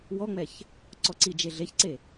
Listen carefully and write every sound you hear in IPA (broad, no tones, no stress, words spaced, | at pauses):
wɔŋ͡mɛç | ǀɔǀid͡ʒe ɮeçǀe